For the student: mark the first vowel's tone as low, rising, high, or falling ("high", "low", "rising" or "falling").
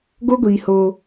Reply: high